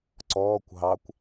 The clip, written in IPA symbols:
ǀɔːkʷ ɦɑkʷ

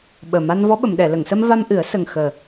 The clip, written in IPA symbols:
ɓəː˨˩ ma˧nvɔ˧˥ɓə˨˩˨m ɗɛ˨˩˨lə˨˩˨ŋsə˧mva˧m ʔɨ˨˩˦ə̯sə˨˩ŋ xəː˨˩

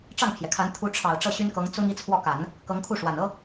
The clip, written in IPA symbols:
ʈ͡ʂɑ˥˩ŋpʰjɛ˩kʰa˧˥n t̪ʰu˧˥ʈ͡ʂʰɑ˨˩ʊ̯ ʈ͡ʂɤ˥˩ɕy˥nkɤ˧˥ŋ t͡sʊ˥ŋ i˥˧t͡sʰwɔ˥˩ka˨˩˦n | kɤ˧˥ŋkʰu˥˩ʂwa˨˩n ɤ˥

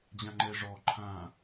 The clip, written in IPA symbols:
d͡ʑãŋ͡ǃɛ ʐɔ ǃʰã

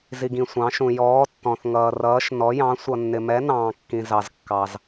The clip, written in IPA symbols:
zi˩ɡĩ˩ sʷɑ̃˩˧ʃũ˩ jɔː˩˧ tːɔ̃˩θ ŋʌː˩rʌː˩˧ʃ nɔ˩˧jɑ̃˩˧ sʷʌ˩nːɪ˩ mɛ˩˧ nɑ̃ː˩kːĩ˩ zɑ˩zkːɑ˩z

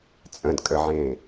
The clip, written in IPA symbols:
t͡sʼə̃dkʼəʕẽː

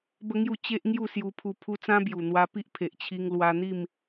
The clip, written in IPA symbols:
bə˦ŋju˥˧ t͡ɕe˦ʔŋju˥˧sju˧pʰu˧ pʰu˦ t͡sã˦bju˨˩n̪wa˧pi˦ʔ pʰe˨ʔt͡ɕʰi˧ŋ lwa˧n̪i˥˧m

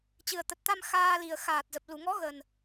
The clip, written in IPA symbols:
t͡ɕɨ˨˩ə̯t̪ə˨˩t̚t̪a˧m xaː˧li˨˩ə̯ xaː˨˩t̚zə˨˩p̚ lu˧˩ŋɔ˨˦ ɣə˨˩n

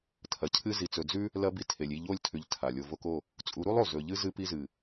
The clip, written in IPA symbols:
tʰɐ˨cʰɨ˧ zi˨t͡sɵ˨ d͡zʉ˦ | lɐ˦bi˧ tʰe˨lʲi˦˨ʎo˦˨lʲtʰʉ˨ʎ tʰa˨ lʲo˨ vo˧ko˦˨ | t͡sʼu˨˦ɾu˦lˠo˨ zɵ˨ʎɨ˦ zɨ˧pi˧zɨ˨

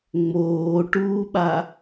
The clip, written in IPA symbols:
ŋ͡moːʈuːɓa

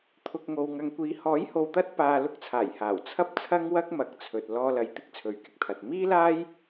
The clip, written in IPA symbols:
t̪ʰʊ˨k̚ŋo˨w ŋɐ˨ŋkʷiː˨˧ hɔː˨˥jho˨wt̪ɐ˧t̚ paː˨ lʊ˧k̚t͡sʰaː˨˩jhaː˨˩w t͡sʰɐ˧p̚t͡sʰɐ˧ŋwɐ˧k̚ mɐ˨˥k̚t͡sʰɵ˨t̚ lɔː˧lɐ˨j t̪ɪ˥k̚t͡sʰɵ˨˥ɥkɪ˧k̚t̪ʰɐ˨t̚ miː˥laː˥j

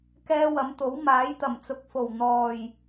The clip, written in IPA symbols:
kɛː˥wɐ˨˥m t̪o˨˥w maː˨˥jt̪ɐ˨˩mt͡sʊ˨˥k̚fo˨˩w n̪ɔː˨˩j

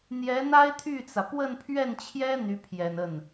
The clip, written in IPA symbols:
n̪jɛ˧˥n̪a˥ɪ̯t̪ʰy˥˩t͡sä˩ pwə˥˧npʰɥɛ˥˩nt͡ɕʰjɛ˥ n̪y˧˥pʰjɛ˨˩n ə˥˩n

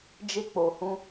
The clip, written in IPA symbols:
d͡ʒe˧k͡po˨hũ˧

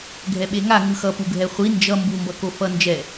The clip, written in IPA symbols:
ɡʱɛɓeŋa ŋɯxʌ puɡʱɛχʷi nd͡ʒʌ mbumbʌko fʌ nd͡ʒɛ

